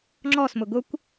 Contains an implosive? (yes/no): no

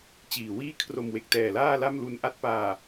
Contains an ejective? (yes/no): no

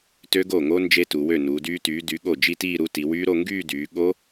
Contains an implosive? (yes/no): yes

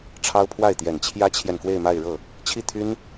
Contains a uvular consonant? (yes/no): no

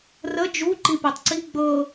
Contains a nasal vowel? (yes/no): no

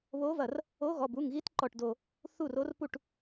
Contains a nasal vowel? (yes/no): no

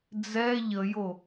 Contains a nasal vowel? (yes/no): no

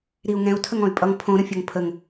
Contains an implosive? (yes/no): no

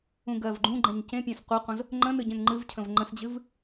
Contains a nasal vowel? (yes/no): yes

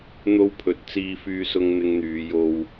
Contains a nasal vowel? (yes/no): no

